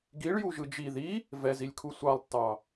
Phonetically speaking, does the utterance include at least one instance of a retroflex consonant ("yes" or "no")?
yes